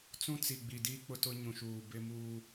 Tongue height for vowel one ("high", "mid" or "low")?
high